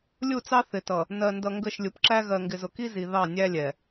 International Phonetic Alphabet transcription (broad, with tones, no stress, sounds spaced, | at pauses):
lʲ u˦˨ t͡s ɑ˦ θ ɪ˨ t ʌ˨ | n ɜ˨ n d ʌ˨ ŋ ɡ ə˦˨ ʃ lʲ u˨ p ǁ æ˦ ɣ ɜ˨ ŋ ɡ ɪ˨ z ʊ˨ k i˦ z i˨ ð ɑ˦˨ nʲ æ˦ lʲ ɛ˨